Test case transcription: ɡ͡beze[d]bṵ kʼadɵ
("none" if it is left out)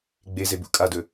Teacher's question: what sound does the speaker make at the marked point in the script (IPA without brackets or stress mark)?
none